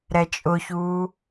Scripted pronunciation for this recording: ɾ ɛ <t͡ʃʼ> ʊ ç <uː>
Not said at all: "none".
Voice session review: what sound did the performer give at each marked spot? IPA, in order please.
t͡ʃʼ, uː

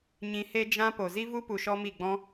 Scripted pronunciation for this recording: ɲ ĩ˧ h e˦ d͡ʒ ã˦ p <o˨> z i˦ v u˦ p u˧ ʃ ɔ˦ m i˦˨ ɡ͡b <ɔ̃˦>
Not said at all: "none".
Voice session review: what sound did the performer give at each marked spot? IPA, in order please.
o˨, ɔ̃˦

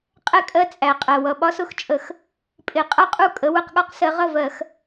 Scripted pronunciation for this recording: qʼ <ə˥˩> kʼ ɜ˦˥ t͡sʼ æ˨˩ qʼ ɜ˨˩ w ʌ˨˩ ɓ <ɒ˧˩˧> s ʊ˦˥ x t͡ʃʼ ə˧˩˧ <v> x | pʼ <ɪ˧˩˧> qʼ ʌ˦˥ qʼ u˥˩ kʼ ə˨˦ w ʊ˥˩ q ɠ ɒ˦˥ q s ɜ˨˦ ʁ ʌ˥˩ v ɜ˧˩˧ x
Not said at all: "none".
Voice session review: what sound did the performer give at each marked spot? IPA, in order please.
ɛ˥˩, ɒ˦˥, none, ɪ˧˩˧

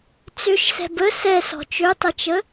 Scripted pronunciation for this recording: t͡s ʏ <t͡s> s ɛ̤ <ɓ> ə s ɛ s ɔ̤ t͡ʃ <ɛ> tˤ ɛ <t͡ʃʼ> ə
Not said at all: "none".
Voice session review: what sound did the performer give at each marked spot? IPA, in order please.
ʃ, b, ø, t͡ʃ

